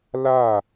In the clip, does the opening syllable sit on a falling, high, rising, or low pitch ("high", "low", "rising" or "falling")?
falling